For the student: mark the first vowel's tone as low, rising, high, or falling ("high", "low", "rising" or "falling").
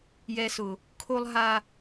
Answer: low